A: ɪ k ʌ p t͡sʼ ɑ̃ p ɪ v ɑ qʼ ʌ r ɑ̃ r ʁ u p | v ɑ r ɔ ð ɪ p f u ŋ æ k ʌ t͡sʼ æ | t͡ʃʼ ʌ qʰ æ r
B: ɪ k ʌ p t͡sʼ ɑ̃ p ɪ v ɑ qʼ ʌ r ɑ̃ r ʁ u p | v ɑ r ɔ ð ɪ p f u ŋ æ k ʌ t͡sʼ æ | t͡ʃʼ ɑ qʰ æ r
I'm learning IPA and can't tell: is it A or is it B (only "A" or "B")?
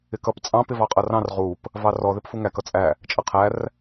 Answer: A